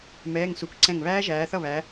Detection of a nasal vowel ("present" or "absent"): present